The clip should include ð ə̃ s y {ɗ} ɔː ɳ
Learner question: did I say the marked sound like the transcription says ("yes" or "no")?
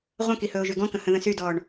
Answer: no